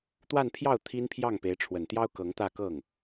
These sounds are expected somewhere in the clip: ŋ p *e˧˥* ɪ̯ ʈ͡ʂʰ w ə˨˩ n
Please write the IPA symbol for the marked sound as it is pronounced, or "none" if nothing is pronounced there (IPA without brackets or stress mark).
e˧˥